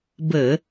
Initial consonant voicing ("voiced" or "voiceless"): voiced